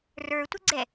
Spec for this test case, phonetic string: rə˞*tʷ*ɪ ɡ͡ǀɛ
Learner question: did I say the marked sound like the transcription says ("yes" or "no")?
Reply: yes